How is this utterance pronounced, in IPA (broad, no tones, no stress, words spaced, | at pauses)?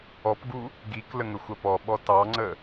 ɔpɡu | ɡiklə ŋəxʷɐpɔɓɔ tɑŋ͡ǀə